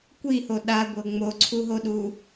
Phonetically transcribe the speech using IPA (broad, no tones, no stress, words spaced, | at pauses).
kʷiho ɗaɡʷɤ ŋ͡moǀʰuɦoɗu